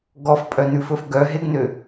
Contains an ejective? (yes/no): yes